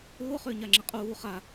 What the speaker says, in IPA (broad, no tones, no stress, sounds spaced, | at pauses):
ʊː χ ʏː ɲ a ŋ͡ǁ ə qʼ uː χ a